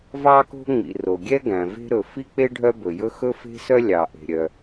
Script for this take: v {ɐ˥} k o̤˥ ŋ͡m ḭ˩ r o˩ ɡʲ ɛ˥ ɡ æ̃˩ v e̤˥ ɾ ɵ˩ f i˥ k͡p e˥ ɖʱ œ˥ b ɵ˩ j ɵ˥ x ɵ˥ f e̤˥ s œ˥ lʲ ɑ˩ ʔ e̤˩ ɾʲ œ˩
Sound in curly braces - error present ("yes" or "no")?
yes